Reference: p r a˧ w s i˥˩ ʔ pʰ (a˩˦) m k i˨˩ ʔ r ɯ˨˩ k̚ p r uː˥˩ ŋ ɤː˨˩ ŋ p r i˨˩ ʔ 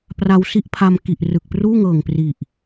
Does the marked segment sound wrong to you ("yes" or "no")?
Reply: yes